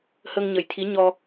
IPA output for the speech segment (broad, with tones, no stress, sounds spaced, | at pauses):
h ə˧ ŋ ɲ ə˨˩˦ j t̪ʰ i˧˥ ɲ ɔ˧